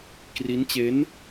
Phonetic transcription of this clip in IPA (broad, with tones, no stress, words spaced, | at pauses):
kri˦˥nt͡ɕe˦˥n